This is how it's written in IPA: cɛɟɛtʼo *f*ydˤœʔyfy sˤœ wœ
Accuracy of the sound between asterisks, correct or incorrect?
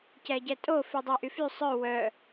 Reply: correct